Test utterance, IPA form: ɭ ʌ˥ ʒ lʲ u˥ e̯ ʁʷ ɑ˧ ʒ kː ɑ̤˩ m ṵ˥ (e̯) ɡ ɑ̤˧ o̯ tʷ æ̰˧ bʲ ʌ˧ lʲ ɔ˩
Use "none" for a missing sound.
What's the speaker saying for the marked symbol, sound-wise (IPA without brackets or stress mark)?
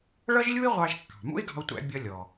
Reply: e̯